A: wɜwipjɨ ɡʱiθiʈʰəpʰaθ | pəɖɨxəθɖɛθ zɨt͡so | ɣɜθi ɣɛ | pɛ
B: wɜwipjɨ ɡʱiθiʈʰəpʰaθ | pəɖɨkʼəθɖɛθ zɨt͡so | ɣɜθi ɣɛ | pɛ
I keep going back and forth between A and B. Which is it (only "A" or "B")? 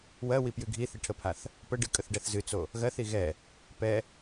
B